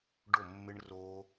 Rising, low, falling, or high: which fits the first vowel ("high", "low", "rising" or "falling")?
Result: falling